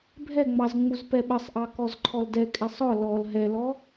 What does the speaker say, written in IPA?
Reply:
bʱɛŋ͡mɑz ŋ͡muzpɛɓəsˤʔɑ kɔzǃʰɔldɛkʼɛsˤ ɔ lɔl ɦɛlɔ

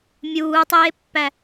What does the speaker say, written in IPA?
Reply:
mʲuːtˤeːpːæ

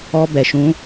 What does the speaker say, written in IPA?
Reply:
ɔ˧bɛ˨ʃũ˨˦

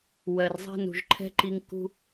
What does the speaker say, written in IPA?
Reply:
wɜ˩rzˤi̤˧ nṳ˩ʒǃʰɛ̤˥ǃi˧ŋ kṳ˧

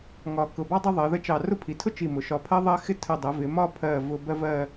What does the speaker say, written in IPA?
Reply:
ŋɒ˧˩ kʊ˧˩bɑ˥dˤə˥˧ ðˤɜ˩˧ðə˥˧t͡ʃɑ˧˩ rʊ˥˧pʰi˩˧tʰʊ˥ t͡ʃi˧˩mʊ˩˧ʃɒ˧˩pʰɜ˥ ðˤɜ˥ xɪ˥ tʰə˧˩dˤə˩˧ vɪ˩˧mɒ˥˧pʰɜ˧˩ vʊ˧ bɜ˥vɜ˥˧

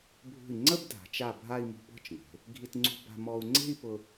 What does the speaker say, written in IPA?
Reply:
bʱṳ˧˩i̯ŋ͡ǀə˥˧bdʱa̤˩˧t͡ʃa˧˩ bʱa˥˧i̯mṳ˧pɔ̤˥˧t͡ʃŋe̤˩˧ | ɡʱi˧tŋ͡ǀṳ˧ ba̤˧mɔ˧u̯ ŋ͡ǀe̤˥˧i̯pʊ˧

